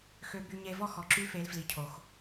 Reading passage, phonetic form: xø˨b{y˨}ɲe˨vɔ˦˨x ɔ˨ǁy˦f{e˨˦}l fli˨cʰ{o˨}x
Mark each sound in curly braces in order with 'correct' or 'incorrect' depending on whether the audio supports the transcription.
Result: correct, correct, correct

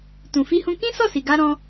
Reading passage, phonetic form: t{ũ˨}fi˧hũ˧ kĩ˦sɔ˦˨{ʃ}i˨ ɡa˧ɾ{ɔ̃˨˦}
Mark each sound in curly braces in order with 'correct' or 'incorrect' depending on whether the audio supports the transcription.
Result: correct, incorrect, incorrect

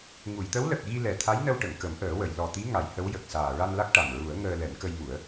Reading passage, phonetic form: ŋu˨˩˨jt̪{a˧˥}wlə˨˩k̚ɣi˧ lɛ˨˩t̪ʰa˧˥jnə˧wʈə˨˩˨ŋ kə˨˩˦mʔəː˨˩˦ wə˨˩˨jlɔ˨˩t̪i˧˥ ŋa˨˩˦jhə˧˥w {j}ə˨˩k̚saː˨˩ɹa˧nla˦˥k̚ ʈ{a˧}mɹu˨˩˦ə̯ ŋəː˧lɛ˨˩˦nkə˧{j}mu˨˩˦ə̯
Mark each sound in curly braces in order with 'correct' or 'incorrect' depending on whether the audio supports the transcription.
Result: incorrect, correct, incorrect, correct

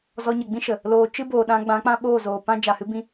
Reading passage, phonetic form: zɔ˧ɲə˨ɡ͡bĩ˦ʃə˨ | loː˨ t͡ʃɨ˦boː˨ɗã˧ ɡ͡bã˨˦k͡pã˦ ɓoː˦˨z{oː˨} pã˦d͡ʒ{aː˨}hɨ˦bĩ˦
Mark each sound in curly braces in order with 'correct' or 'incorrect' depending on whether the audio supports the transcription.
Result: correct, incorrect

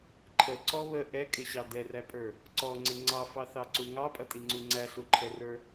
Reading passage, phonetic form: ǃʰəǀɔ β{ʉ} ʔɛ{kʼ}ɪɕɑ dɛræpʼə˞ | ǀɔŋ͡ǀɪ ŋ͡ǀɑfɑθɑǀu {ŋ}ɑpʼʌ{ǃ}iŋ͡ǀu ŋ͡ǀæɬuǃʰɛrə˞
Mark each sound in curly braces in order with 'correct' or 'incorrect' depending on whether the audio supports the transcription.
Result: incorrect, correct, correct, incorrect

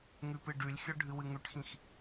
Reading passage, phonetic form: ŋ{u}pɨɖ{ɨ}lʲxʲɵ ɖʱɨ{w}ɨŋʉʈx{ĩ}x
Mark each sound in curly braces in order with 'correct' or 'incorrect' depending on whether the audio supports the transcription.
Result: incorrect, incorrect, correct, correct

